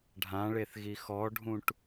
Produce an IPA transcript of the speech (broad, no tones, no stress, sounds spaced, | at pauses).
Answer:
ɖʱ ã ɭ e θ ɣ i x ɔ ɖʱ ũ ʈ